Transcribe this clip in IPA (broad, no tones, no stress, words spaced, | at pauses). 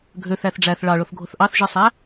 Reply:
ɡʱøθæθ ɖ͡ʐæθ ɭɑɭoθɡʱoθ ʔɑθʒɯsˤæ